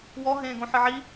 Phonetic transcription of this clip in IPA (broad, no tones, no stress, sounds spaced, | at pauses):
w ɔ ɦ ẽː ɡ õ ħ ɨ ʕ i